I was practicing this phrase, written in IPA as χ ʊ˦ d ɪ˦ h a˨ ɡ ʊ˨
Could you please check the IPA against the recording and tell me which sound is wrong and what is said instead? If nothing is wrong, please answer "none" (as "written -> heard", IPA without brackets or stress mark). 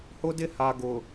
χ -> h